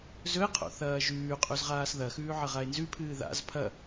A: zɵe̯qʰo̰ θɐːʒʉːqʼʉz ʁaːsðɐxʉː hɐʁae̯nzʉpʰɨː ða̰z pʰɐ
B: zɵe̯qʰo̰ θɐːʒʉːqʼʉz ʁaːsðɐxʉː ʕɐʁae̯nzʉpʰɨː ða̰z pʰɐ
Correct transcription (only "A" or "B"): B